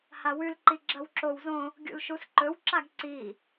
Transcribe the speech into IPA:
h a w ʉ l ǃ i ɡ͡ǁ ɐ w ǁ o w z õ | ɡʲ ṵ l ʃ u s ǃ ɵ w ǁ a ɡ ǀ i

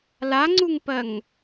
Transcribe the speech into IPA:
l a ŋ͡ǀ u ŋ p ɜ ŋ

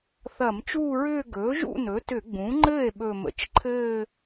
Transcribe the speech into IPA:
θ ɐ˧˩˧ m t͡ʃ uː˥˧ ɹ ʏː˥˧ ɡ ɵː˩˥ ʒ ṵ˥˧ n ɵ˩˥ t ʏ˧˩˧ ɡ͡b ũ˩˥ ŋ͡ǃ ɘː˥˩ e̯ ɓ ɵ˨˩ m ə̰˩˥ t͡ʃ ǃʰ ɘː˥˧

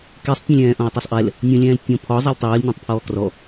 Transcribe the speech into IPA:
k i sˤ tʲ ɛ̃ lʲ ɛ̃ː ʔ õ ə̯ tˤ o sˤ ʔ ɛ l | nʲ õ lʲ ɛ̃ː l tʲ õ pʰ ɔ zˤ ɛ lʲ tˤ ɨː l nʲ õ tˤ pʰ ɔː k r ɔ

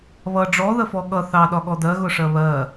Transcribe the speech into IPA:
β ʌ ɖ͡ʐ ɔ ð ə f ɔ ɠ ʌ θ ɑ ɗ ɒ ɠ ɔ d ɜ ɣ ʊ ʂ ɜ β ɜ

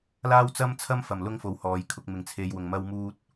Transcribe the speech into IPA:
l aː˥ w t͡s ɐ˥ m t͡sʰ ɐ˥ m f ɐ˨˩ m l ʊ˥ ŋ f o˨˥ w h ɔː˨ j kʰ ʊ˧ k̚ m ɪ˨˩ ŋ t͡sʰ e˨ j w ʊ˨˩ ŋ m ɐ˧ w m uː˧ t̚

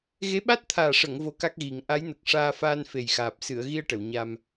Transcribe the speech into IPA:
ɣ e˧˥ ɓ a˦˥ t̚ t̪ʰ aː˨˩ ʂ ə˨˩˨ ŋ v o˧˥ k a˦˥ k̚ ɣ i˨˩˦ ŋ ʔ a˧˥ j n ə˨˩ k̚ ʂ aː˧ f aː˧ n f e˨˩ j x aː˨˩ p̚ s ɨ˨˩˨ ə̯ ɣ i˧ ə̯ ʈ ə˨˩˨ w ɲ a˧ m

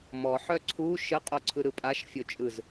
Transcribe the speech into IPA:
m ɔ ħ œ ǀʰ u ʃ ə qʼ o ǀʰ ɯ ɾ ɯ pʼ a ʃ fʲ o t͡ʃʼ ɯ z

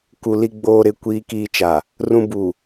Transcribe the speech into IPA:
k u˨ l i˨ ɡ͡b oː˨ ɾ ɪ˨ kʷ iː˨ k iː˨ t͡ʃ a˨ | r ũ˨ b u˨

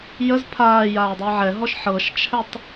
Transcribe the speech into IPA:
j ə z pʰ aː j aː dˤ ɤ ʕ ɛ ɦ ɔ ʃ ħ ɤ ʃ t͡ʃʰ ɛ tˤ

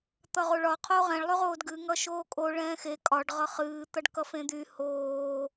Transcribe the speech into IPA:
t̪ ʌ ʁ o ɭ ɒ qʰ oː ʁ ɛ̃ ɭ lˠ y ʁ oː d ɡ ɨ ŋ ʌ ʃ oː kʼ o ɭ ɛ̃ː x e kʼ ɒ ɖ ʁ ʌ χ ɨː t̪ ʌ ɖ k ʌ f ẽ d̪ y h oː

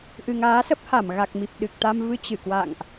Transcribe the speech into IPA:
ʔ ɨ˨˩ ŋ aː˨˦ s ə˦˥ p̚ h a˧˩ m ɣ a˨˩ k̚ m i˨˩ p̚ ɗ ɨ˨˩ k̚ t̪ a˧ m v ɨ˧ t͡ɕ ɨ˧˩ k w a̰˧˨ ŋ ʔ

